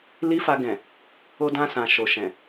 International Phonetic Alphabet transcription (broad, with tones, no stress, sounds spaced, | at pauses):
l i˦ f a˧ ɡ ɛ̃˨ | o˧ d ã˧ s ã˨ ʃ o˨ ʃ ɛ̃˨